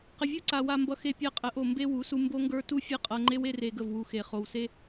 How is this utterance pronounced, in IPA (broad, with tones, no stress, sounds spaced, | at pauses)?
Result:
q ə˨ vʲ u˦ ǀ a˨ w a˧ m b ʌ˧ x e˧ pʲ a˧ qʼ ə˨˦ ʔ o˨ m b e˦ w u˨˦ s u˧ m b o˦ ŋ ɡ ə˞˦ t u˦ fʲ ʌ˦ qʼ ɤ˧ ŋ͡ǃ e˦ w e˦ r e˧ ɡ ə˦˨ v w u˧ x e˨ χ o˨ w s e˦